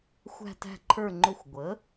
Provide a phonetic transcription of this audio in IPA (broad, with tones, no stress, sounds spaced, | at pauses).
xʷ æ̤˦˨ t æ̤˦˨ ǃʰ ə˞˦˨ ŋ͡ǃ ʊ˦˨ xʷ ɡʷ ə˩˥